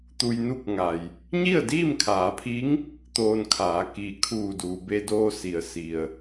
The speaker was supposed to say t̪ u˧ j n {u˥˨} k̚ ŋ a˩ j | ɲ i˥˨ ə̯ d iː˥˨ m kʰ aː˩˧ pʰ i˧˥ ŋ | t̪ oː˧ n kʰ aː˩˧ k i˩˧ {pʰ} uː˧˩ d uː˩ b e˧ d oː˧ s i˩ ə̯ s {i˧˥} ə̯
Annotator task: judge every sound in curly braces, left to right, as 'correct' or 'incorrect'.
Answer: correct, incorrect: kʰ, incorrect: i˩

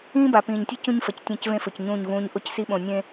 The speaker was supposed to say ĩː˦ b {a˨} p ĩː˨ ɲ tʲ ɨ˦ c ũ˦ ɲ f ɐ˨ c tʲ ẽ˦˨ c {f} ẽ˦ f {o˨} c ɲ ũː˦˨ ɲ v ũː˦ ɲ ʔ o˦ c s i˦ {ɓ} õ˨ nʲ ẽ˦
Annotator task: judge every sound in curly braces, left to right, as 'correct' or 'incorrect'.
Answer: correct, incorrect: v, incorrect: ɵ˨, correct

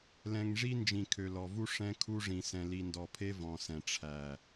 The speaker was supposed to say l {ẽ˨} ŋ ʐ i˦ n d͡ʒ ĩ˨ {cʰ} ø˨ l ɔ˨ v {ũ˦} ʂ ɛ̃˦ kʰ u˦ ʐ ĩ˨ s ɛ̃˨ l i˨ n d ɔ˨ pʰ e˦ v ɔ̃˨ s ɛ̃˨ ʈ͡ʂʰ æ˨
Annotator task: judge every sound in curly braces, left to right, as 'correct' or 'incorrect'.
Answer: incorrect: ɛ̃˨, incorrect: kʰ, incorrect: u˦

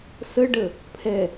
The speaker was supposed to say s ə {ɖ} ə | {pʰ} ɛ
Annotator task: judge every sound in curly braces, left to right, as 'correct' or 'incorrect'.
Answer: correct, correct

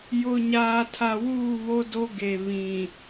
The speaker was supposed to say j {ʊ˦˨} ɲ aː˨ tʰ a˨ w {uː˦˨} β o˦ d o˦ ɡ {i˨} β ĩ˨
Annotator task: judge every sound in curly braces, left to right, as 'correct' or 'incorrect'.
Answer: incorrect: ʊ˨, correct, incorrect: e˨

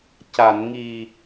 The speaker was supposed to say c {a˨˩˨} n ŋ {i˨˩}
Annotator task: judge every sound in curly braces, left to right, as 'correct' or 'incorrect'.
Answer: correct, correct

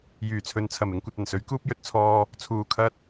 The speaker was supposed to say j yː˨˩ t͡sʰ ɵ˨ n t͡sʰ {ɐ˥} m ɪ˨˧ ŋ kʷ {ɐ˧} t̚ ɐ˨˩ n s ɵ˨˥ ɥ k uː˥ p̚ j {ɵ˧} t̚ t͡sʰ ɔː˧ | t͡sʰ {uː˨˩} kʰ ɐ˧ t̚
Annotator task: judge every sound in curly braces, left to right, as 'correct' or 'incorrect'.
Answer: incorrect: ɐ˨˩, correct, correct, correct

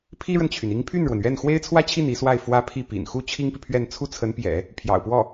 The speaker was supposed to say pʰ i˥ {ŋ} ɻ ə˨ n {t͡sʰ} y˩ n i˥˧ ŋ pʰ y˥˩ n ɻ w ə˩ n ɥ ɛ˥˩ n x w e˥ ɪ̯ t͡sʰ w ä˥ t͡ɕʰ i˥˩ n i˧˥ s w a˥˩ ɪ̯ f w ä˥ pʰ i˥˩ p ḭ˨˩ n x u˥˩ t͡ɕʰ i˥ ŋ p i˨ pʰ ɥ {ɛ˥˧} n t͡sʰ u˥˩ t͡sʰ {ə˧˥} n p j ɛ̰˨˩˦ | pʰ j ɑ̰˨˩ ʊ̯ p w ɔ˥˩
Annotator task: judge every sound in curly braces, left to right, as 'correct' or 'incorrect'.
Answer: incorrect: none, incorrect: t͡ɕʰ, correct, correct

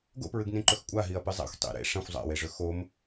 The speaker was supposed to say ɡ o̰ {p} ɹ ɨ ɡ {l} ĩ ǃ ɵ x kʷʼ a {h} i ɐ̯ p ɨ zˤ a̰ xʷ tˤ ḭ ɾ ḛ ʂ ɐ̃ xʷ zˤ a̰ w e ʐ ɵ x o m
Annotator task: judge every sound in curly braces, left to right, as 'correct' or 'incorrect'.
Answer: correct, incorrect: n, incorrect: ɦ

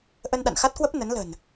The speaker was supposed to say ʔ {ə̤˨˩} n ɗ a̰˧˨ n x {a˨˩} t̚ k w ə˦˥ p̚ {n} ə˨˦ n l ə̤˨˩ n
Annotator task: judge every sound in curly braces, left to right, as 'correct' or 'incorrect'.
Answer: incorrect: ə˧, incorrect: a˦˥, correct

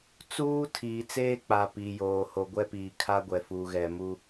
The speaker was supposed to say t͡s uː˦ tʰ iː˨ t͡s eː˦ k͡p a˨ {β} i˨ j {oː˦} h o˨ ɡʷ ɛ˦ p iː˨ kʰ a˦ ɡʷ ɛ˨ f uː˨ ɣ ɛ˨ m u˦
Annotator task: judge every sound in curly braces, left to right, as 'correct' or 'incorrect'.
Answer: incorrect: p, incorrect: oː˨

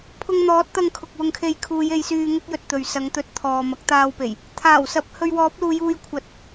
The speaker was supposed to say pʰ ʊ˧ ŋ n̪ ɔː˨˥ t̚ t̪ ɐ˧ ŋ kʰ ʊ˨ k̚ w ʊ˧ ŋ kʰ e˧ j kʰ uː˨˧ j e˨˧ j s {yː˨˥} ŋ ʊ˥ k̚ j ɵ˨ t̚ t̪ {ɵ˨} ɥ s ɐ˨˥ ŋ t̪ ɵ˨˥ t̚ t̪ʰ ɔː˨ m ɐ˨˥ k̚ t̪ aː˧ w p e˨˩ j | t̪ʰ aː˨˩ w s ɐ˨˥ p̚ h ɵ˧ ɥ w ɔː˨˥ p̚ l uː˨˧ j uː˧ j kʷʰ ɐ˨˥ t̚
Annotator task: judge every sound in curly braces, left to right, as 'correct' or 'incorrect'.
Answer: incorrect: yː˧, correct

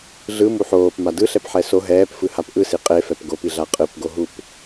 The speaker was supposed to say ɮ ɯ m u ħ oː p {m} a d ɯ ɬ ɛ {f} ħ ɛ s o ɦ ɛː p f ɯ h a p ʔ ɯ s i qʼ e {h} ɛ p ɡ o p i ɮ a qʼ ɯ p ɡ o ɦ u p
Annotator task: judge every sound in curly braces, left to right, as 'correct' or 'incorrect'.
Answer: correct, incorrect: p, incorrect: f

